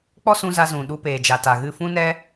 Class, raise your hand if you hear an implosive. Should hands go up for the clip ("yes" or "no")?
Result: yes